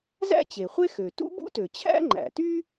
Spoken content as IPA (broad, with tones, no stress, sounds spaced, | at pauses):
z æ̰˥ t͡ɕ e˩ χʷ e˥ x ø˩ t ṵ˥ b ṵ˥ t ø˩ t͡ɕʰ æ̰˥ ŋ͡ǃ æ̰˩ t y˥